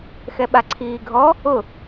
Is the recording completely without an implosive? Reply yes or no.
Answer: no